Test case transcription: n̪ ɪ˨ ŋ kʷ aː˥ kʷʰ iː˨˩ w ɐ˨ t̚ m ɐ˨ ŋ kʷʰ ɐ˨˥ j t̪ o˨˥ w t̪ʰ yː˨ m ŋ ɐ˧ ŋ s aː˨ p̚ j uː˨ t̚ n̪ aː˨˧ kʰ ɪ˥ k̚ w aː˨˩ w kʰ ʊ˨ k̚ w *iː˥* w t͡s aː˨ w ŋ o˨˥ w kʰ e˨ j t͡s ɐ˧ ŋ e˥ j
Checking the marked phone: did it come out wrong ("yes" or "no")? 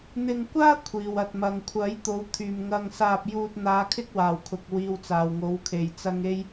yes